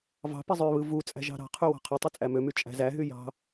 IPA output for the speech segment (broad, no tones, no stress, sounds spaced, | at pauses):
v ɑ̤ p i zˤ ø β ɯ v u t͡sʼ æ̤ ʒ ɑ̤ ɾ ɑ̤ qʰ y w ɑ̤ qʰ o tˤ y t͡sʼ æ m ø m y t͡ʃʼ æ̤ z æ ɦ y j ɑ̤